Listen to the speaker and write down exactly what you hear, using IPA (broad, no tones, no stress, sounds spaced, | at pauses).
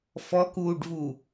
f ɔ k uː ɖ v u